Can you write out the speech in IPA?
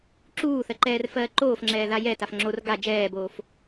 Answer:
ǁ uː θ ɜ ǃ ɛː r f ɜː ǃ oː f ŋ͡ǁ ɛː ð a j ɛ t a f ŋ͡ǁ o r ɡ a d͡ʒ ɛː b oː f

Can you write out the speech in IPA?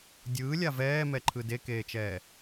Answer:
dʲ ɯː lʲ a v ɛː m ɛ ǃʰ ɯ d e k eː t͡ʃ ɛː

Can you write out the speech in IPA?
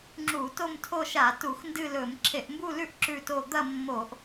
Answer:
ŋ͡ǁ u˧˩˧ t o˥˧ m tʰ o˥˧ ʃ a˧˩˧ t u˧˩˧ x n d ɨ˥˧ l ɵ˧˩˧ m ǁʰ e˧˩˧ ʔ m b u˥˧ l ʉ˥˧ ʔ ǁ ʉ˥˧ t o˥˧ d̪ ɐ˥˧ mː o˧˩˧ ʔ

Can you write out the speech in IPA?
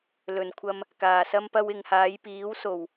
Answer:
l ɵ˨˩ n kʷʰ ɐ˧ m | k aː˨˩ s ɐ˧ m p ɐ˧ w ɪ˨ ŋ h aː˨˧ j p iː˨˥ w s o˨˩ w

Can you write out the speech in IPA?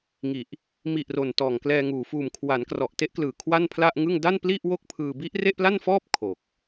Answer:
ŋ i˨˩ ʔ | m i˨˩ ʔ r o˨˩ n t ɔː˨˩ ŋ k l ɛː˧ ŋ uː˨˩ f uː˨˩ m kʰ w a˩˦ n k r ɔ˨˩ ʔ t e˦˥ ʔ k l ɯː˨˩ kʰ w a˥˩ n pʰ l a˥˩ ʔ ŋ ɯ˥˩ ŋ d a˥˩ n p l i˥˩ ʔ w o˥˩ k̚ pʰ ɯː˧ b i˦˥ ʔ r e˥˩ ʔ p l a˥˩ n f ɔː˥˩ p̚ kʰ o˨˩ k̚

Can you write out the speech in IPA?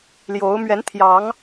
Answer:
l j o˨˦ ʊ̯ m ɥ ɛ˨˦ n t̪ʰ j ɑ˨˦ ŋ

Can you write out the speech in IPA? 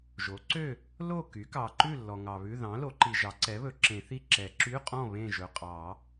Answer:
ʒ o˩˥ ǀ ø˥˨ | l o˥˨ k y˩˥ k ɑ˨ ǃ ʉ˥˨ lː ɔ˨ ŋ ɑ˨ β ʉ˧˥˧ ð ɑ̃˩˥ l o˩˥ ǃ i˨ ʒ ɑ˩˥ ǀ ɛ˩˥ β ɵ˨˩˦ ǁ ẽ˨˩˦ θ i˥˨ ǁ ɛ˨˩˦ ǁ y˧˥˧ qʼ ɔ̃˥˨ β ẽ˥˨ ʒ ɵ˨ qʼ ɑ˨˩˦

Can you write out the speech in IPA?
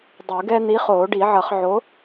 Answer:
dˤ u˨˩˦ ɡ ɛ˦ n̪ i˨˥ χ oː˨˩˦ ɖ i˨˩˦ ʕ ʌ˨˩˦ χ ʕ o˨˥

